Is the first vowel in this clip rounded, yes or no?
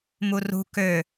yes